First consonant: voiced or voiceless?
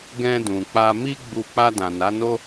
voiced